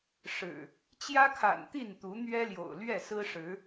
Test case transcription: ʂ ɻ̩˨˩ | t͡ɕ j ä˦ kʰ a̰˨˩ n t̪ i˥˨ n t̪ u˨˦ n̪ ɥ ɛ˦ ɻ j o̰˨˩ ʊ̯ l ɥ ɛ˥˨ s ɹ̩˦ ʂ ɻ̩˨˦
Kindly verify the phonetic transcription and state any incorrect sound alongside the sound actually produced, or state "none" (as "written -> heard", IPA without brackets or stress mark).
ɻ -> l